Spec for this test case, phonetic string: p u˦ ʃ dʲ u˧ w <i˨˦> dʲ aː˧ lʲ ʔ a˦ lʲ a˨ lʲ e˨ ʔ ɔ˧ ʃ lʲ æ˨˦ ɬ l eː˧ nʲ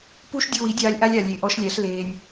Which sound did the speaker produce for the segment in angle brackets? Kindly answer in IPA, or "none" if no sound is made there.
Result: i˨˦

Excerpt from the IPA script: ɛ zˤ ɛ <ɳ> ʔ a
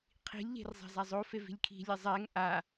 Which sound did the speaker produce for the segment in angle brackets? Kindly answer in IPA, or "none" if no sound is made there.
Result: ŋ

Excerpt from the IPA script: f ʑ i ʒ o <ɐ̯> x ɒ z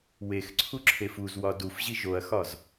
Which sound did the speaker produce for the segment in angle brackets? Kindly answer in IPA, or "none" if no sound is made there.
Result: ɐ̯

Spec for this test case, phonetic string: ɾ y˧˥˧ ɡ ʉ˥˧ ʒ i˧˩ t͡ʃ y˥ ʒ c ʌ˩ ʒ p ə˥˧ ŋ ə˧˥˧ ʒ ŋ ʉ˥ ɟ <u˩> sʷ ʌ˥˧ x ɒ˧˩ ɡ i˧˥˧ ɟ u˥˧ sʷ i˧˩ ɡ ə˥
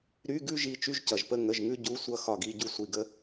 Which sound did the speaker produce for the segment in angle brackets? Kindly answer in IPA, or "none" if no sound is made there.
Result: u˧˥˧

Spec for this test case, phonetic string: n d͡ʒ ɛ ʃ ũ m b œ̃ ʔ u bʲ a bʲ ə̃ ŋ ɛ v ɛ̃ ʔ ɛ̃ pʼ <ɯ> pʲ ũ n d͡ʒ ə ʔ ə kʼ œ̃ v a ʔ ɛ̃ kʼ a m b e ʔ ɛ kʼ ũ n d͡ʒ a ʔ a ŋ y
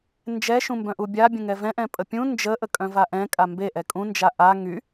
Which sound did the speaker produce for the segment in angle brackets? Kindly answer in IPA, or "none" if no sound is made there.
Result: ə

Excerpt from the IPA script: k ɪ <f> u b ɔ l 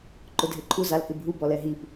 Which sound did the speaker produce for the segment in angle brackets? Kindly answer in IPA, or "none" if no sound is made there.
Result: bʱ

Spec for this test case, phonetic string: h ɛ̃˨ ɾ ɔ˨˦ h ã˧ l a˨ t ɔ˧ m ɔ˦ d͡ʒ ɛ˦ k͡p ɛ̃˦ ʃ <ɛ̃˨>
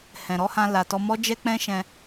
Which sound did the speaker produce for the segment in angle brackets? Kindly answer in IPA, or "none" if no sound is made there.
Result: ɛ̃˧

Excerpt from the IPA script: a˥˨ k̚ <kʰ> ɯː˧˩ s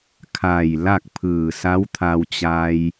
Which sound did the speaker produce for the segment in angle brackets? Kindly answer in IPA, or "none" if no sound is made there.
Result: pʰ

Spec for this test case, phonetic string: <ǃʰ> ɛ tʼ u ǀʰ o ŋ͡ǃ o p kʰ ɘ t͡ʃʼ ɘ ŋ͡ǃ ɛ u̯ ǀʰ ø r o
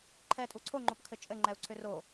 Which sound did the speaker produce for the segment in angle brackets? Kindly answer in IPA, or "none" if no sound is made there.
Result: ǃʰ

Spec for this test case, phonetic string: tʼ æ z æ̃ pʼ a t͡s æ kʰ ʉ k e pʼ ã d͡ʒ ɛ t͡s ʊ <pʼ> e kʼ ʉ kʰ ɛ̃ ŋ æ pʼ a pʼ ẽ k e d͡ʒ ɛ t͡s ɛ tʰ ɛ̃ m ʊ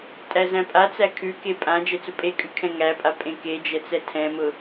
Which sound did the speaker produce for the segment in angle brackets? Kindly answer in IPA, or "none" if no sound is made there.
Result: pʼ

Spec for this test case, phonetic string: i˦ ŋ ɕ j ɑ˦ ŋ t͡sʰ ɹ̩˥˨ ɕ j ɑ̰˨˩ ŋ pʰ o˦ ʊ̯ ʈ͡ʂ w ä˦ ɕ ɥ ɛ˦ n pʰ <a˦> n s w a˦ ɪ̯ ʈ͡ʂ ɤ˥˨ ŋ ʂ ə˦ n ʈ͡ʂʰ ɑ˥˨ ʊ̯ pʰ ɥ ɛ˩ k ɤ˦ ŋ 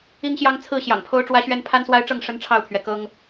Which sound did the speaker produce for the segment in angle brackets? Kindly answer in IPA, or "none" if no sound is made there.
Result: a˦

